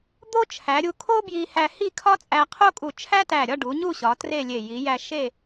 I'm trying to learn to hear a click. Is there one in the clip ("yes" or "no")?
no